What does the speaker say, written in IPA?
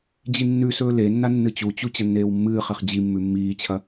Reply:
d͡ʑ i nː ʉ s ɵː l e nː a nː ɨ t͡ɕ u t͡ɕ u t͡ɕ ɐ nː eː w mː ɨː χ e χ d͡ʑ i mː ʉ mː iː t͡ɕʰ ɐ

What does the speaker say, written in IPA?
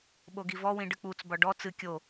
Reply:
ɓ o ɡ i v ɔ w ĩ ɖ ɨ k͡p u t͡s b ɒ ɖ ɔ t͡s ɨ kʲ o

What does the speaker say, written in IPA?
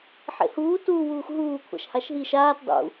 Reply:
ħ ḛ h uː t uː w uː x ɦ uː kʷʰ a̰ ʃ h a ʃ ɦ i ʃ aː t dˤ ṵ

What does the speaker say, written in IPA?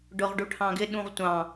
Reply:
ɖ ʊ ʁ ɖ u ʈʰ ɑ̃ ɡ ɪ ɗ ũ ʁ tʷ ɑ̃

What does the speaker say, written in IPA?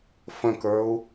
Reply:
f ə̃ k ə˞ u̯

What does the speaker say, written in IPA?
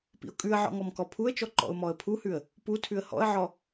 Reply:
p ḭ ʊ̯ kʼ ʉ ə̯ ʕ ɔ̰ ŋ ɔ m k ɔ pʰ u ə̯ t͡ʃ ɔ ǃ ɔ̰ ʊ̯ m ɔ ə̯ pʰ u h ʉ ə̯ | p u tʰ ʉ ə̯ h ɔ̰ ə̯ ʕ ɔ

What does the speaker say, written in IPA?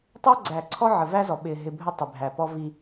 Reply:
tˤ æ˦ ɡ͡ǀ æ˨ ǀʰ ɔ˦ ʕ ə˨ v æ˦ z ɔ˨ ɓ ɪː˨ ɦ ɪ˨ bʱ ə˦ tˤ ɪ˨ bʱ æ˨ p ɔ˦ v i˦

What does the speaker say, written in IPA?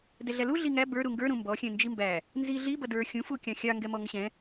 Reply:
d ɛ ɮ æ l u ɮ i ŋ æ b ə˞ ɾ u ŋ ɡ ə˞ ɾ ũ m b ɔ xʲ ɛ̃ n d͡ʒ i m b æ | n z i ɮ i b ʌ d ə˞ xʲ ũ f u kʲ ɑ̃ xʲ ɑ ŋ ɡ ɛ m ɔ ŋ ə ɕ ɛ̃

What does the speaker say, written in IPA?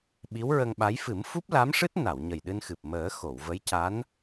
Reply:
ɓ i˧˥ w ɹ ə˧ ŋ ɓ a˧˥ j f ɨ˨˩˦ m f u˦˥ p̚ l a˧˥ m ʂ ɨ˦˥ t̚ n a˨˩˨ w ɲ ə˨˩ j ɗ ɨ˧ n x ɨ˨˩ p̚ m əː˨˩˦ x o˨˩˨ w v ə˧˥ j c a˧˥ n

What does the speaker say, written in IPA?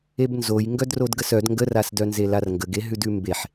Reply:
e b n z o j ŋ ɡ œ d r o d ɡ ə s œ d ŋ ɡ ə r a s d œ n z e l a r ŋ ɡ ə ɡ e ɦ ʉ d ʉ m b e ħ

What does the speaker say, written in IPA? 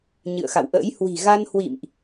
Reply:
ɲ ɨ̰˧˨ ə̯ x a̰˧˨ w ʔ ə̰ː˧˥ j h w i̤˨˩ ɣ a˧ n h w ḭ˧˨ m ʔ

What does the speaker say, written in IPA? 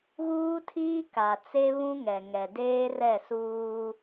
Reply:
ɣ uː˦ tʰ iː˦ k a˨ t͡s e˦ β ũ˦ ŋ ɛ˨ ŋ ɛ˨ d eː˦ r ɛ˦˨ s uː˦

